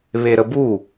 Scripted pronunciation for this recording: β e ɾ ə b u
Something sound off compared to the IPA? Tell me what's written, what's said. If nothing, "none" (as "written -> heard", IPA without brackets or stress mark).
none